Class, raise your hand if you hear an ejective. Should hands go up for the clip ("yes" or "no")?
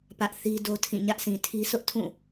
no